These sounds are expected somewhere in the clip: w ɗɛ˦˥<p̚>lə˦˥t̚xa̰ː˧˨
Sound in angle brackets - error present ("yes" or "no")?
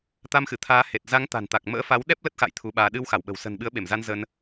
no